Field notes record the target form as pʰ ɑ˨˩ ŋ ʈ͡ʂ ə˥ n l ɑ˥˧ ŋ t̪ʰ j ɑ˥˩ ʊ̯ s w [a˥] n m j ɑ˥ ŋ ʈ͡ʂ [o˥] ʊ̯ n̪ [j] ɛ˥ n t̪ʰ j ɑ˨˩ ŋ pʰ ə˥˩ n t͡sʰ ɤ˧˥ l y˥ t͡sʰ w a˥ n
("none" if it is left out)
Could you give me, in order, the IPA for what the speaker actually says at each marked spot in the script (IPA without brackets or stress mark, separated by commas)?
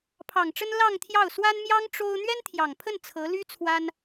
a˥, o˥, ɥ